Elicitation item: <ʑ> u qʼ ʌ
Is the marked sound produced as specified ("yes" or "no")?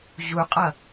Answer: yes